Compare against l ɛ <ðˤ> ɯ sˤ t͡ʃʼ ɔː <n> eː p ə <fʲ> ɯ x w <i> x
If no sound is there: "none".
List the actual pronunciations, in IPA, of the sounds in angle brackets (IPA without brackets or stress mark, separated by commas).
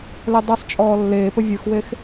dˤ, lː, vʲ, e